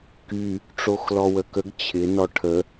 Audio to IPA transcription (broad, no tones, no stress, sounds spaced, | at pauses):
k y | ʈ͡ʂ o x l ɔ w ə k ə ɡ t͡ɕʰ ɪ n ɔ ʈʰ ə